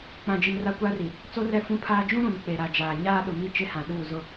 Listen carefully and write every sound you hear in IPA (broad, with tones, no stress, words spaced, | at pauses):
k͡pã˨d͡ʒi˨m ra˦kʷa˦ri˨ | t͡so˦rɛ˦˨fũ˦pʰaː˦ d͡ʒũ˦ɾũ˨n k͡pe˨ ɾa˨d͡ʒaː˨ ɲaː˦ ɗʊ˨mi˦ t͡ʃɪ˦hã˨ ɗuː˦˨zʊ˦